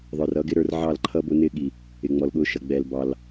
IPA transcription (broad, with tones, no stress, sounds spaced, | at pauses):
ðˤ ə˞˨ r ʌ˦ ɡ ɪ˦ ɾ ə˞˦ r ʕ ɑ˦˨ l ǃʰ ʌ˦ b ʊ˦ n ɪ˦ ɠ i˨ | ɪ˨ ŋ͡m ɔ˨ l ɠ ʊ˦ ʃ ʌ˨ ɡ͡b ɛ˨ l b ɑ˨ l